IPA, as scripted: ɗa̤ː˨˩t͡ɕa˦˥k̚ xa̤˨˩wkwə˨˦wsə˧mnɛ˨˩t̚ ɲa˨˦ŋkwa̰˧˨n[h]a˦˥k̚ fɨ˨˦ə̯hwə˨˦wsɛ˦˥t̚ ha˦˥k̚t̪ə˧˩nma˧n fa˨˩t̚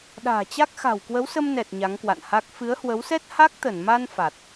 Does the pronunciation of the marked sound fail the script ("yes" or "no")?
no